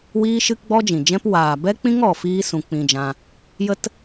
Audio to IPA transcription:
wi˦ʃɨ˦kɡ͡bɔ˦ d͡ʒĩ˨d͡ʒɛ̃˦p waː˨ bɛ˦k͡pĩ˦ŋɔ˨ fiː˦ sũ˧k͡pĩ˧d͡ʒã˧ | jə˦t

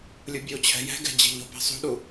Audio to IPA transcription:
lʲubʲut͡ɕʰɛ̤ jɛ̤ɡɛ̤ d͡ʑi̤ʎo̤pɛ̤ sˤṳɗu

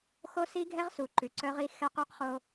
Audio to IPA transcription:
xo˦si˦ɡʱɛ˦ʁsu˨ ǃʉ˨ǀœ˦ʁi˦ xɛ˦qø˦qχo˦

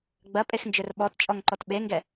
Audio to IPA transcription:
ɡ͡bɐpʼexnd͡ʒʏr ɓɔtt͡ʃʼɔŋǃɔt ɓeŋɡɛ

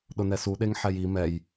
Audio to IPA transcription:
ɗʊnɛsu ɗeŋħɛji mɛj

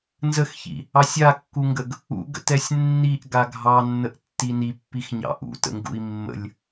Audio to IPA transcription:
nzəxçḭ | ɑsʲakːuŋɡəɡ | ṵɡə̰tɛsʲ nːiʔ ɡaɡʱɑnːəʔ tːinipːixɲɑ̰ ʔṵtə̰ŋɡṵi̯ mːə̰lʲ

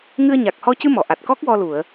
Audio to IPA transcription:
ŋɨ˧ə̯ ɲa˨˩k̚hɔ˧ cɨ˧ mɔ˨˩˨ ʔa˨˩t̚ kɔ˦˥k̚ wɔ˧ lu˨˩˨ə̯

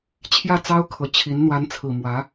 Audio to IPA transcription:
t͡ɕʰjä˥˩t͡sɑ˥ʊ̯kʰɤ˨˩t͡ɕʰi˧˥n n̪wa˧˥nt͡sʰɹ̩˨˩ mwä˧˥

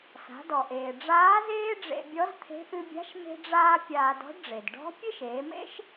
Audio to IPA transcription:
sa̤˩˧dɔ˩ʔeː˩ ɖ͡ʐaː˧˥zeː˥ ɖ͡ʐḛ˧bʲɔ˧˥zt̪ʰe̤˧˥ ʔɨ˧bʲa̤˧˥ʃ me̤˧ɖ͡ʐaː˧ pʲaː˧dɔ̤˧˥ɖɖ͡ʐe˩d ɖɔ̤˧˥ pʲe˥ʃeː˩˧mḛ˥ʃ

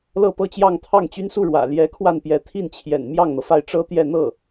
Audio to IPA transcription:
lɤ˥˧pɤ˥˧t͡ɕjɑ˥˧ŋ t̪ʰɑ˥˩ŋt͡ɕy˥n su˥˩ɻwä̰˨˩ ljɛ˧˥kʰwa˥˩npjɛ˧˥ t̪ʰi˥˩n t͡ɕʰjɛ̰˨˩n mjɑ˥˩ŋn̪ɤ˩fa˥˩ɪ̯ ʈ͡ʂɤ˥t̪jɛ˥˧ n̪ɤ˥˩

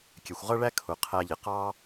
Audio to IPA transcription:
kʲɛ˩xʷʁʌ˥ɭæ˥ kʰʊ˩qʰæ˧ʎɪ˩ qɑ˥

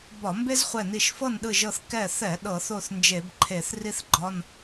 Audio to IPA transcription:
bɒ˧˩˧mbe˥zχʷɛ˧˩ni˧˩ʃ fɤ˥˨nɗɯ˧˩ʒɤ˧˩θ kɛ˧˩θɛ˧˩˧ ɗɤ˧˩˧θo˥˨θnd͡ʒe˧˩˧bǃʰe˧˩˧θ ri˥θɡ͡ǃɒ˧˥˧n

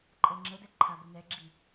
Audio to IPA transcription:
ǃʼɛŋ͡ǁədɛ ǃʰabənɛɡ͡ǁi

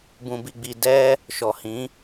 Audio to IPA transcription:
bũ˧bi˧ɡ͡bi˧ dɛ˦ | ʃɔ˨hĩ˨˦

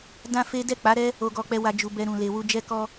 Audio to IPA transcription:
dã˦fe˦ dɛ˦˨k͡pa˨˦ɾɛ˦ | o˧ɡɔ˧k͡pɛ˧ wa˨d͡ʒu˨ bɛ˧ ɾũ˨le˨wu˧ d͡ʒɛ˦kɔ˦

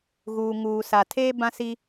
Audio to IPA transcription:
ɣuː˨ŋuː˨sa˨tʰeː˦ bã˦si˦

